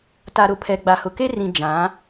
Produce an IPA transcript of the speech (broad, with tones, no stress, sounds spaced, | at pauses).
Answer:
t a˨ ɾ ʊ˨ pʰ ɛ˨ ɡ͡b a˨ h ʊ˨ k e˦ r ĩ˨ d͡ʒ ã˨˦